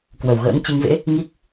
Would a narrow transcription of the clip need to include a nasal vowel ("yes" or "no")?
no